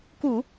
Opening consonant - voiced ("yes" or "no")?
no